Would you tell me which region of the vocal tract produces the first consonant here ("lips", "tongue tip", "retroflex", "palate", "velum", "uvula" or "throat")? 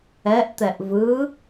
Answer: throat